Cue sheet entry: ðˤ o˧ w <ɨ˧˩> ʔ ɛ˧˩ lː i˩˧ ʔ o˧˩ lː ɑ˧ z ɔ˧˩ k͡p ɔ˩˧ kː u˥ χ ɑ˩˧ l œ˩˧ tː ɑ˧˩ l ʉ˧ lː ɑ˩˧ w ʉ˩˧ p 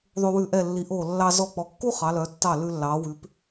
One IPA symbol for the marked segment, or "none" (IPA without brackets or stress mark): ʉ˧˩